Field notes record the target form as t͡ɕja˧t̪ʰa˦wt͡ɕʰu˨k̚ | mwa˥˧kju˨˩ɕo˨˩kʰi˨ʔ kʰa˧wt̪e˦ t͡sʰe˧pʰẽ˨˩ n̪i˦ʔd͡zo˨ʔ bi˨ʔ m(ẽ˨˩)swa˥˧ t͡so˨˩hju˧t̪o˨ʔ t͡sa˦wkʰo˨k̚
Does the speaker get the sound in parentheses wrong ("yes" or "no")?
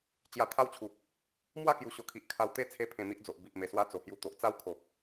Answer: yes